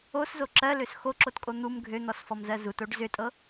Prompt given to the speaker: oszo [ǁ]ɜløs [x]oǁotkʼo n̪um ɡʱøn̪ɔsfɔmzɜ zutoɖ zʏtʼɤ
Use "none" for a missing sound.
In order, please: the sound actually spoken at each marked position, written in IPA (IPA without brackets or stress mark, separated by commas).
ǁ, x